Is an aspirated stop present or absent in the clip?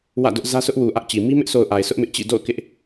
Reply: absent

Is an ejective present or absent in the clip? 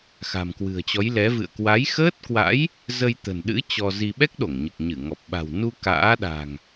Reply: absent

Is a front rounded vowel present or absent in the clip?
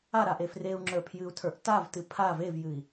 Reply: absent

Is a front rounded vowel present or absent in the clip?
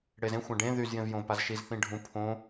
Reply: present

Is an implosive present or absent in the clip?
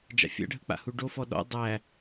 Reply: present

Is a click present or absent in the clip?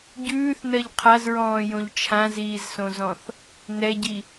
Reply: absent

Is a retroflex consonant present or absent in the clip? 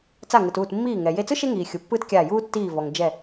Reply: absent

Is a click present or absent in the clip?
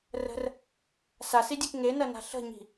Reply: absent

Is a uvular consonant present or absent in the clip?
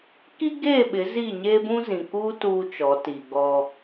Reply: absent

